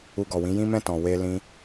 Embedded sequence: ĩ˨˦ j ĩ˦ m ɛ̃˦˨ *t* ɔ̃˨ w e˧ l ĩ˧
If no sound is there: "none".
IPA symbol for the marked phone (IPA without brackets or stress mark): t